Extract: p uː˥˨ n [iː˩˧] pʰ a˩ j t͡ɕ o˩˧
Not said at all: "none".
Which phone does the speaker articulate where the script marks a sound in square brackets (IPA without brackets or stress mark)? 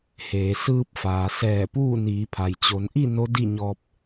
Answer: iː˩˧